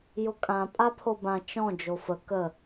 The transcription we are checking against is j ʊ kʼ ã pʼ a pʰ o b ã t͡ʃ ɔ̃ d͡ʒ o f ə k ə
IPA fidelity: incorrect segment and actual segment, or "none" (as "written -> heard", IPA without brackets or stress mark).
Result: none